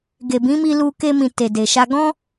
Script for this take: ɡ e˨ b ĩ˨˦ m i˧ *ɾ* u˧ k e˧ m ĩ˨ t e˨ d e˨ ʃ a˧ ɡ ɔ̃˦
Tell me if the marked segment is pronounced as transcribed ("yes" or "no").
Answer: no